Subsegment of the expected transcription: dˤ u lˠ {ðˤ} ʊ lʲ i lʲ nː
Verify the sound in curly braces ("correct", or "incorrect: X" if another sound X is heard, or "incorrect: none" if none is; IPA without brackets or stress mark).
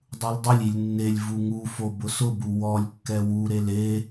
incorrect: dˤ